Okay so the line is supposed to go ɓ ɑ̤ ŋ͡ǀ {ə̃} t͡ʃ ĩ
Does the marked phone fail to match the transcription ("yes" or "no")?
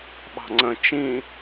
no